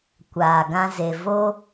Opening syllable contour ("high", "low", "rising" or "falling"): low